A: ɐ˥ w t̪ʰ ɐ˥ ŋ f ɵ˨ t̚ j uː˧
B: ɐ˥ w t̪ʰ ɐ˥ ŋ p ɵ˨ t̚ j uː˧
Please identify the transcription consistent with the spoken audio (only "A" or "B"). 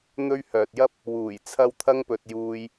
B